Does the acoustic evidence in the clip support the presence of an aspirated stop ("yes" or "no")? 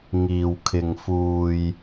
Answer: yes